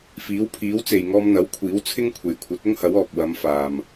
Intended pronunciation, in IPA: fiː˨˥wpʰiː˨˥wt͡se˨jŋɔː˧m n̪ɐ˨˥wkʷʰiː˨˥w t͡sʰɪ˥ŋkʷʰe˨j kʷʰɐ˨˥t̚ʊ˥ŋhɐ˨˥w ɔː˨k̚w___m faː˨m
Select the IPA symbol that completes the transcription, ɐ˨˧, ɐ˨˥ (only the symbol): ɐ˨˧